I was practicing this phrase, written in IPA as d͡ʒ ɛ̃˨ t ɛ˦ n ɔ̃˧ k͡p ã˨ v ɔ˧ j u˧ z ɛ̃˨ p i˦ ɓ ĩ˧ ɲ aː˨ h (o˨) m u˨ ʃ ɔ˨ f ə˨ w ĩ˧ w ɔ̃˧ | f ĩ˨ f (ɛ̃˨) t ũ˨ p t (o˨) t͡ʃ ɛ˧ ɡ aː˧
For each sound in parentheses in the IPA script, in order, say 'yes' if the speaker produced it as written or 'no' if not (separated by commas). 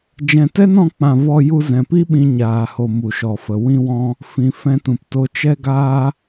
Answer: yes, no, yes